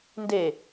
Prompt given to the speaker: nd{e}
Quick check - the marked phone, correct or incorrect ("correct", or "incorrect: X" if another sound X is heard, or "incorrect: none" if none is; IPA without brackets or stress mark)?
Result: correct